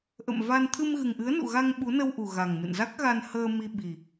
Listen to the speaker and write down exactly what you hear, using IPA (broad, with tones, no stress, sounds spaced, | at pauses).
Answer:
ʔ ə̰˧˨ m v a˧ n t̪ʰ ɨ˧ m ɣ ɨ˨˩ ŋ ʔ ɨ˨˦ ə̯ n ṵ˧˨ ɣ a˧ ŋ ɓ u˨˦ n ə˧ w ʔ u˨˩ ɣ a˨˩ ŋ m ɨ̰˧˨ n z a˦˥ k̚ ɣ a˧ n h əː˧ m i˧ ɓ i˨˩